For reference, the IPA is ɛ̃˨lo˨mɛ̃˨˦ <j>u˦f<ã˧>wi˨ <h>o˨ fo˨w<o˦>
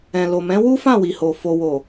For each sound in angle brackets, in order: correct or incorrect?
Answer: incorrect, incorrect, correct, incorrect

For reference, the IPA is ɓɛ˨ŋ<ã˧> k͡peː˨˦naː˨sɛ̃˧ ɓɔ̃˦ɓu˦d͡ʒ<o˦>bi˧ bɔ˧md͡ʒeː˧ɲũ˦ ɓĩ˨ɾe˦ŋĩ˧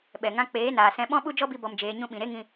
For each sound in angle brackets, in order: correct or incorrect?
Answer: correct, incorrect

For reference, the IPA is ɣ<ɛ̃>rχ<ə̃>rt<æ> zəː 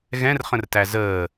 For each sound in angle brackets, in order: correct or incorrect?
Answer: correct, correct, correct

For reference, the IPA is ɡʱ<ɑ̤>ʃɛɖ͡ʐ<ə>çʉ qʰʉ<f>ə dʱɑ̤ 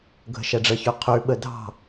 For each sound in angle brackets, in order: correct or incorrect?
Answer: incorrect, correct, incorrect

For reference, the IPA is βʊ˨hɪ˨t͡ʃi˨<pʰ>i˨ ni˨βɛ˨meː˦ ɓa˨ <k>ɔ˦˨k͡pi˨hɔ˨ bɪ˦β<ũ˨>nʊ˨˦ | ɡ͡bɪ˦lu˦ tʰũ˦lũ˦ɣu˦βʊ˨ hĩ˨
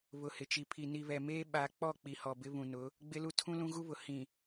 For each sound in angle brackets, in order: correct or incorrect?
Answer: correct, incorrect, correct

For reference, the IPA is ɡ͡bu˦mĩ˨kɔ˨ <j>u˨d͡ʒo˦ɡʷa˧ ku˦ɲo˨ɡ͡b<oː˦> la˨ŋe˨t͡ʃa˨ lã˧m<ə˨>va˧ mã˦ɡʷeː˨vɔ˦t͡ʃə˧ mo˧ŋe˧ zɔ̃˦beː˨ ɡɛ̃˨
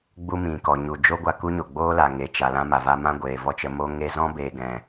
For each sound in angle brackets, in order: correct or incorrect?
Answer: incorrect, correct, incorrect

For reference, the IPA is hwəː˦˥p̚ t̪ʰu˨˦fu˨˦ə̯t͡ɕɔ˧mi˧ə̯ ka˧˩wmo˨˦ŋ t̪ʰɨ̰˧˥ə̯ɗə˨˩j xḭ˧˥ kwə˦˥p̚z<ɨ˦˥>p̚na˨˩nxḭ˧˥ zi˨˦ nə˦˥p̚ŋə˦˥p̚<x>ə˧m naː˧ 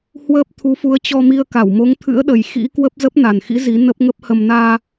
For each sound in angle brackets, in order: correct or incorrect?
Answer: incorrect, incorrect

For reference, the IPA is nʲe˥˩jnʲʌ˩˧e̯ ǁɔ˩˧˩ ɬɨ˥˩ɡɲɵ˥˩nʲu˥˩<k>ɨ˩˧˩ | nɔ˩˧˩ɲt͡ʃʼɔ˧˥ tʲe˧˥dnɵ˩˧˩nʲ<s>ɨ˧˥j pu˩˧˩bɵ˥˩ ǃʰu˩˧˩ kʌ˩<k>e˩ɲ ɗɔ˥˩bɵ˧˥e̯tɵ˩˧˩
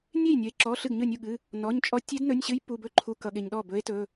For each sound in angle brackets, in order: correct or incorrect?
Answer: incorrect, incorrect, incorrect

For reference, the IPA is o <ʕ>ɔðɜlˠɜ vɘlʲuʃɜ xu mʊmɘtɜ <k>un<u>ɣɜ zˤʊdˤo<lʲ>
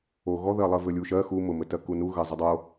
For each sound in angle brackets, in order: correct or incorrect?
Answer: incorrect, correct, correct, incorrect

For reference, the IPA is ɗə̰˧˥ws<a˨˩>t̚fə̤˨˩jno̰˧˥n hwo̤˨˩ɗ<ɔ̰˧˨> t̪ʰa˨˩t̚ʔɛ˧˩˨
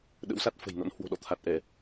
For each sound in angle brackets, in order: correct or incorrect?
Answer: incorrect, correct

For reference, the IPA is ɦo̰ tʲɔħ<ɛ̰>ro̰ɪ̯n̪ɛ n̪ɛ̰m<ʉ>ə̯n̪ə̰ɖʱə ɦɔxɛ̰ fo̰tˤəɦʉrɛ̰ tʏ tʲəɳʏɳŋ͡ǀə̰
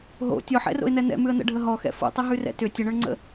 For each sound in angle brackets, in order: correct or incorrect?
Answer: correct, correct

